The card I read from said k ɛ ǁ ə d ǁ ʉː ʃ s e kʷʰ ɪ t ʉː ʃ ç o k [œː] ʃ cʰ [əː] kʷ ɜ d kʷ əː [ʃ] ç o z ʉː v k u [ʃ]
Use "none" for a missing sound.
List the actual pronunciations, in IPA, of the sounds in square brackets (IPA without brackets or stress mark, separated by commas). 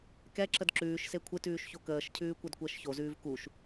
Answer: əː, ʉː, ʃ, ʃ